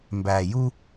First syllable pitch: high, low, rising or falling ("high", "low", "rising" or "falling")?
low